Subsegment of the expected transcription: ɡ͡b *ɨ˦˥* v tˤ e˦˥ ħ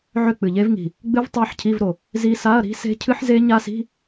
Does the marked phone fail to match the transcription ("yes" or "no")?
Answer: no